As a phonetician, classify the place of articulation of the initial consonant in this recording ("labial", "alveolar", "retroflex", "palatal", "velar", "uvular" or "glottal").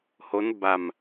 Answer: glottal